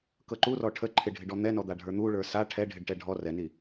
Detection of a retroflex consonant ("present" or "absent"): present